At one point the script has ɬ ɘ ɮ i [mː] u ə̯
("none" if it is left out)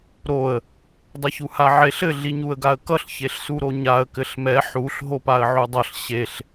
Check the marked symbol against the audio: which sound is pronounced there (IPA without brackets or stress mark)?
ɲ